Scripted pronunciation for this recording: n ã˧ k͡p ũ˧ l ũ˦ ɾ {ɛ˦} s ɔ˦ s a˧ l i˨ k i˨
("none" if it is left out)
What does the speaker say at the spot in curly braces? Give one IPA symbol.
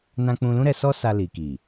ɛ˧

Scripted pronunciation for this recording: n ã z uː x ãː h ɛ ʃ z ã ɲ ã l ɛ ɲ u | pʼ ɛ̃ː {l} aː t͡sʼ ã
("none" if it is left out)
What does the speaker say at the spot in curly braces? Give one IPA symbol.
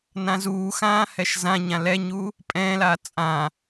l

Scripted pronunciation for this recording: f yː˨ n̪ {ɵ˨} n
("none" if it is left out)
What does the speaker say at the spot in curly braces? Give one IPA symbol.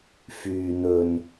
ɵ˨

